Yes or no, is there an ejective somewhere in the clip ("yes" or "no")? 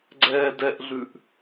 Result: no